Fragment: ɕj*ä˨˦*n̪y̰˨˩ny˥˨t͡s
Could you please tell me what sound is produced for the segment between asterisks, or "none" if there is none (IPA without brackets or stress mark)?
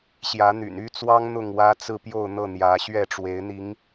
ä˨˦